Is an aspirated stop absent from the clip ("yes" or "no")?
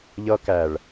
yes